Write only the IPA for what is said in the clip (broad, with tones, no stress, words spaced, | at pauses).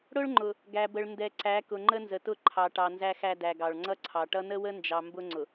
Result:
ɽʊ˦ɭŋ͡ǃʊ˨ | ɡæ˨bə˨ɭ ndɛ˨ ǀæ˨˦ kʊ˨ŋ͡ǃə˦nzə˨tʊ˦˨ ǃʰɑ˨ʈɑ˨ nzæ˦xæ˦dæ˨ɡɑ˨ɭ ŋ͡ǀʌ˦ǀʰɑ˨ʈʌ˦ nə˦wə˦nd͡ʒɑ˨ mbʊ˦ŋ͡ǀʊ˨